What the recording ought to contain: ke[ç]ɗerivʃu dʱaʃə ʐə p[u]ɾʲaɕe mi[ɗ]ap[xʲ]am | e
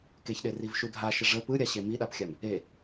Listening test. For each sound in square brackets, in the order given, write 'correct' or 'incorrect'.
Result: correct, incorrect: ɯ, correct, correct

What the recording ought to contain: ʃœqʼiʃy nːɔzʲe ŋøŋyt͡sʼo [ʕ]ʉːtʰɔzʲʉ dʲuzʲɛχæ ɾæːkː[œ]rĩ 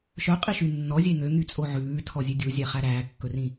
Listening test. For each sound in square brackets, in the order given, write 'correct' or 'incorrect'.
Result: correct, incorrect: ɵ

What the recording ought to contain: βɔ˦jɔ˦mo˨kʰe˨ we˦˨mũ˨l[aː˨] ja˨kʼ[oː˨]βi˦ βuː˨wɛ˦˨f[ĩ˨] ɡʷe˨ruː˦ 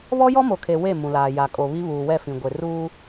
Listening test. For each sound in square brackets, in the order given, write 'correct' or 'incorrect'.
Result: correct, incorrect: o˨, correct

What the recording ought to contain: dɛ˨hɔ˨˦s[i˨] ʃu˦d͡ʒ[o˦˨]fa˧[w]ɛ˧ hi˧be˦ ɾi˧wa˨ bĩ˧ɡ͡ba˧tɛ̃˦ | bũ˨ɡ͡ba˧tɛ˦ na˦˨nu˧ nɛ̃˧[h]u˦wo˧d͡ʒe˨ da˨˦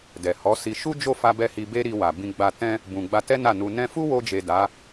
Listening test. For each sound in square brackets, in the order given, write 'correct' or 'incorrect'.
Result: incorrect: i˧, correct, incorrect: b, incorrect: f

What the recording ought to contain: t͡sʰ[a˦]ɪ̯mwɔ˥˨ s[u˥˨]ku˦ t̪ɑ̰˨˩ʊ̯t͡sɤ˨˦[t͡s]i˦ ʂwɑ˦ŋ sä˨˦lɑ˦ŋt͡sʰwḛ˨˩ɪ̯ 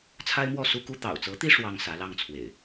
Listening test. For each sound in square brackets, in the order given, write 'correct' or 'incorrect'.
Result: correct, incorrect: u˦, incorrect: t̪

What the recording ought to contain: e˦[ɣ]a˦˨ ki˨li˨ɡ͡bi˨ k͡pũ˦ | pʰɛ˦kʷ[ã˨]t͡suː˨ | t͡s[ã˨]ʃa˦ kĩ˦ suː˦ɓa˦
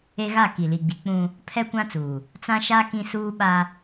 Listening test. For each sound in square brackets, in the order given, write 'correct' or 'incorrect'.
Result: correct, incorrect: ã˦, incorrect: ã˦

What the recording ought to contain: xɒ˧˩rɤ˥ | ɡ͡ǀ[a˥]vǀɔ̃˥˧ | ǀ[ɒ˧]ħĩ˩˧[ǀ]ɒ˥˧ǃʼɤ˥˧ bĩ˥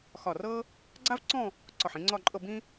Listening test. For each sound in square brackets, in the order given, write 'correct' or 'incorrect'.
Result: correct, incorrect: ɒ˧˩, incorrect: ŋ͡ǀ

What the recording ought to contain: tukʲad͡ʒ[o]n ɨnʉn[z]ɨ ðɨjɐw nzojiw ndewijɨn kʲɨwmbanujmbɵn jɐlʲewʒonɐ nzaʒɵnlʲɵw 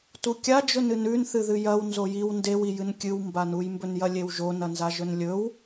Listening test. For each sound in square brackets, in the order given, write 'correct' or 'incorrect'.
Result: incorrect: ɵ, incorrect: θ

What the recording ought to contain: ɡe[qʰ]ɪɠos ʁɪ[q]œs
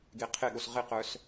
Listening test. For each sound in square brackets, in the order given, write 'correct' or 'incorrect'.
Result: correct, correct

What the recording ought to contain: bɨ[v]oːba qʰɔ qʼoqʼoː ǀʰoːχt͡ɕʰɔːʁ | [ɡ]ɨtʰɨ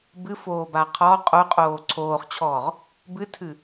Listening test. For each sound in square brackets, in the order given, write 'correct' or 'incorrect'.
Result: incorrect: f, incorrect: b

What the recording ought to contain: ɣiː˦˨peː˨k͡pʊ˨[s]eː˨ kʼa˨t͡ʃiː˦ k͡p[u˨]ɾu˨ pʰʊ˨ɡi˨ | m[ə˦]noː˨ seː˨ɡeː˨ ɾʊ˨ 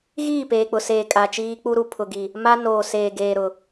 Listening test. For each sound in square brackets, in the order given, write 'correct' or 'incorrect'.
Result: correct, incorrect: u˦, incorrect: a˦

